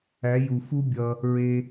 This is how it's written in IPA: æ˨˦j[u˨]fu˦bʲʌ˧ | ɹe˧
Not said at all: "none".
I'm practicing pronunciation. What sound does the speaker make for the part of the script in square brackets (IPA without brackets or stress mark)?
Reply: u˨